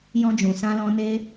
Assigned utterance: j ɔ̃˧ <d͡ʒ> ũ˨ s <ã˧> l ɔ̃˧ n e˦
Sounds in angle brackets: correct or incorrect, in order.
correct, correct

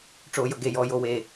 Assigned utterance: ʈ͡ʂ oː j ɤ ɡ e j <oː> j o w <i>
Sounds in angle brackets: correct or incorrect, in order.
incorrect, incorrect

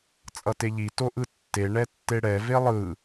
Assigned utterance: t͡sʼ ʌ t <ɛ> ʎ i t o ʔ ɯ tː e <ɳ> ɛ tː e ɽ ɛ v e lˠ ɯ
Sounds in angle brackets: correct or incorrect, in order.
incorrect, correct

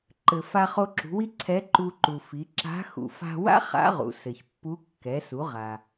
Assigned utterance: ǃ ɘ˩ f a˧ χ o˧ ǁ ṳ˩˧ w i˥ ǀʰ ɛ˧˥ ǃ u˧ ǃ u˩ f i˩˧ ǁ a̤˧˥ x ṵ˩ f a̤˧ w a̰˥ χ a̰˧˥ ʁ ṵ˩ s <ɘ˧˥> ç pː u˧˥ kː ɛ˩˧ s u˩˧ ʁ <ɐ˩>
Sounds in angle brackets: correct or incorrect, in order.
incorrect, incorrect

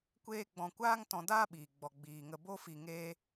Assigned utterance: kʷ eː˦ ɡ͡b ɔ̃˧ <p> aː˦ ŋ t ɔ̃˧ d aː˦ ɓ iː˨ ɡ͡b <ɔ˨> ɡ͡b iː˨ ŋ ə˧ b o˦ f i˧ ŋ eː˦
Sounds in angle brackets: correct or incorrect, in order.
incorrect, correct

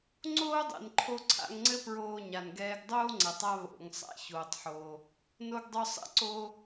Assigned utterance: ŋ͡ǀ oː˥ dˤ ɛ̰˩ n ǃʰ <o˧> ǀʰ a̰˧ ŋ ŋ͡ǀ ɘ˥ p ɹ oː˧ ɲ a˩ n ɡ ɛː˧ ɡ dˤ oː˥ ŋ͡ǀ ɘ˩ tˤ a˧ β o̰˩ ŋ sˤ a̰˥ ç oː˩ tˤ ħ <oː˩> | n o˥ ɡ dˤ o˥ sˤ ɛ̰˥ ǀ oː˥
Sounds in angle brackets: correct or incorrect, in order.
correct, correct

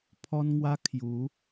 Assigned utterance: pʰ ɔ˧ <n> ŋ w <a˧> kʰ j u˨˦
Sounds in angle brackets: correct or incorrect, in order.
correct, correct

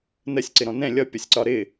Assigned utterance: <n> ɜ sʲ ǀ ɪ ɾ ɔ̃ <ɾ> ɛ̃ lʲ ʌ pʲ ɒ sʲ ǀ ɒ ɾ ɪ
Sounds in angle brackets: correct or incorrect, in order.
correct, incorrect

